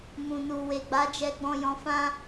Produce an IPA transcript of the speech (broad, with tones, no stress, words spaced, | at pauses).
mũ˨nu˨ we˨ɡ͡ba˨˦d͡ʒɛ˧ɡ͡bɔ̃˧ jɔ̃˧fã˦